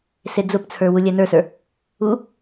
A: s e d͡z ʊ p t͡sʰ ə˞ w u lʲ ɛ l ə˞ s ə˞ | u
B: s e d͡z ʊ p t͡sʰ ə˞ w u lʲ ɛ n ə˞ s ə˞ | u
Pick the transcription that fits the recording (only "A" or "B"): B